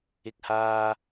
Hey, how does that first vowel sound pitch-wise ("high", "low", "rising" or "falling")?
high